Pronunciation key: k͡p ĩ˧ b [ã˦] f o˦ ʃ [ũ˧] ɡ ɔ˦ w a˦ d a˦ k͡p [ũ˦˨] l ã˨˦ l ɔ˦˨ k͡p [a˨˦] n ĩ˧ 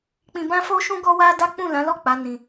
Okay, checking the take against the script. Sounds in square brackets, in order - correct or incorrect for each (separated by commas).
correct, incorrect, correct, correct